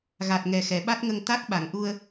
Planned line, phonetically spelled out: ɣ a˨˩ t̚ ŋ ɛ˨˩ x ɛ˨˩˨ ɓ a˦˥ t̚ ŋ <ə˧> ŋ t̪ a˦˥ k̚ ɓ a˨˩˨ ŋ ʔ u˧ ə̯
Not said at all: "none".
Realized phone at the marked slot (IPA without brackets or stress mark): ə˧